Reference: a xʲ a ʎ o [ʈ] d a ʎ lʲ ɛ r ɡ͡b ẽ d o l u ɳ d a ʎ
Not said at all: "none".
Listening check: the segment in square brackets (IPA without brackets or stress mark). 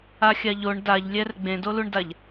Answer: ɳ